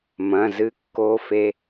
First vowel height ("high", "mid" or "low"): low